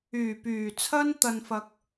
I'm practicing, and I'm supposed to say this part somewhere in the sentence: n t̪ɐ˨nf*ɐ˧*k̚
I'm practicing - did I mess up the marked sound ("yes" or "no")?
yes